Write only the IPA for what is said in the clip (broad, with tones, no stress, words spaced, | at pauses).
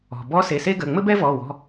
ɔ̤˩bɔ˧˥ se˩˧˩se˥ɡə˩˧˩ ŋ͡mɘ˥bɛ˥vɔ˩˧˩wɔ̤˩˧˩